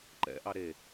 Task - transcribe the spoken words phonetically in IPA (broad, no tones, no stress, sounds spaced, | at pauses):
ǃ ɛ̰ ʔ ɑ ɾ e